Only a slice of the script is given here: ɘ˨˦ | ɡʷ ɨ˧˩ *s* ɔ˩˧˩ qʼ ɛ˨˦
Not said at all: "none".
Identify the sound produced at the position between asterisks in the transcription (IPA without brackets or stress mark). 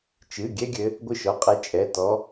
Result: ʃ